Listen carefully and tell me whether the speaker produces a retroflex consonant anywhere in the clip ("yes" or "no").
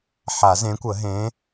no